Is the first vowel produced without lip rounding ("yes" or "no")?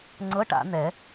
yes